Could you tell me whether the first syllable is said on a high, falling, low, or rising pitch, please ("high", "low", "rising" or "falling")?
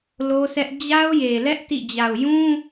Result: high